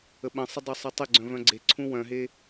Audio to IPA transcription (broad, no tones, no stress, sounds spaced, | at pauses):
ə ɓ ə̃ sˤ ə dˤ œ sˤ ɪ tˤ ɪ ɡ͡ǀ œ̃ v œ̃ ɡ͡ǀ e ǀʰ ũ w œ̃ ɦ e